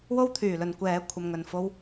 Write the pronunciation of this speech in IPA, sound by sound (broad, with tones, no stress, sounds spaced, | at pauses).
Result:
w o˥ w t̪ʰ yː˨˩ l ɵ˨ n kʷ ɛː˨˥ kʷʰ ɐ˨ m ŋ ɵ˨˩ n f o˧ w